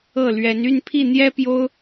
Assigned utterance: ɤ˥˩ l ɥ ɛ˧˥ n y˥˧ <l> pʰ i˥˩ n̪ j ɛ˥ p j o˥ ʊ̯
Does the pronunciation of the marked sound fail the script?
yes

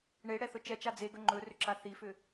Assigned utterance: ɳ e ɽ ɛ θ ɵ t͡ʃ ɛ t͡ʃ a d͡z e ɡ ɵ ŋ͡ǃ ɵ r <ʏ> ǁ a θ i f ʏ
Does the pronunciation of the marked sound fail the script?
no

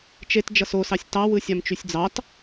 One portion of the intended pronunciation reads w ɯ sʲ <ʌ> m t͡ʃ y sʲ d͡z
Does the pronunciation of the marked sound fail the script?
yes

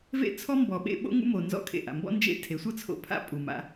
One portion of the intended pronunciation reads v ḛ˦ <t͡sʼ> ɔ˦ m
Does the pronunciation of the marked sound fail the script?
yes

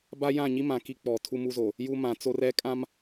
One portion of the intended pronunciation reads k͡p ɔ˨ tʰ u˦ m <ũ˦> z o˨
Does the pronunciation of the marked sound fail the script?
yes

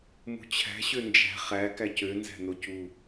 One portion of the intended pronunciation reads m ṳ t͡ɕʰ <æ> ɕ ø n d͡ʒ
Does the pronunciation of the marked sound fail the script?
yes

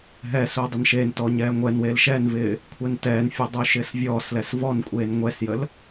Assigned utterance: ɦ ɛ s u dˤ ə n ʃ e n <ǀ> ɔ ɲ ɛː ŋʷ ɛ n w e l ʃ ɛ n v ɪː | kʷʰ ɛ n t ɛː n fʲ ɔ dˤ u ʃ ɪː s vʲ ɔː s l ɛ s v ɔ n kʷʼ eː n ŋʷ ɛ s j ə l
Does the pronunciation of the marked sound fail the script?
yes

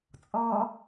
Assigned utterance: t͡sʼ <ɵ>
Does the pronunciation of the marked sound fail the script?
yes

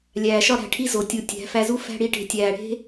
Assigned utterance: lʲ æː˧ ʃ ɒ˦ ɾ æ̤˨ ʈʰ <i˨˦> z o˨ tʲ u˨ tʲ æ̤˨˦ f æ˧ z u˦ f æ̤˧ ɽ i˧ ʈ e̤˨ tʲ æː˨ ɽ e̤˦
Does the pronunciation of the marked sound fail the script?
yes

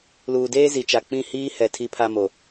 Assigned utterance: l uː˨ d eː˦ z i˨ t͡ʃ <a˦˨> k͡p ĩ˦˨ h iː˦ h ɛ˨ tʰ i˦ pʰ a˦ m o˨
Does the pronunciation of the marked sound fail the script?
yes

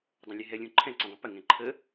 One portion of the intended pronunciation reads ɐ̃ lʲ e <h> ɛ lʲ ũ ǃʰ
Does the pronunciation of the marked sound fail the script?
yes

